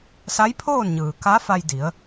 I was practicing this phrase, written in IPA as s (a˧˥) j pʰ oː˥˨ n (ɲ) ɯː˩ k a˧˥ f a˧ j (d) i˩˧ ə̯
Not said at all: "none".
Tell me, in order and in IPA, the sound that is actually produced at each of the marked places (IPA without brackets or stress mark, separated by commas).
a˧˥, ɲ, d